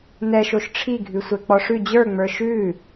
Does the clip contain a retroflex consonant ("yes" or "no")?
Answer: yes